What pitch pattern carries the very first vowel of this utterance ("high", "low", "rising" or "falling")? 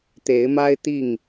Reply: rising